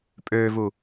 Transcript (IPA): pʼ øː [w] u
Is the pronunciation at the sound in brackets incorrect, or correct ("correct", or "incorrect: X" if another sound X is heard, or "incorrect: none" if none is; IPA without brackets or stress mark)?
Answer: incorrect: v